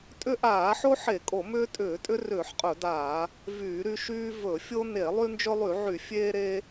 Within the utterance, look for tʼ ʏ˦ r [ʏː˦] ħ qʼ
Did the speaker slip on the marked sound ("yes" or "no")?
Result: yes